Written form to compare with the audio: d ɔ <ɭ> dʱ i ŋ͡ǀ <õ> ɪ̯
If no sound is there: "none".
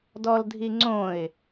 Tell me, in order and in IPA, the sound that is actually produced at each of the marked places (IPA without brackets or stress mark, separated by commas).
l, õ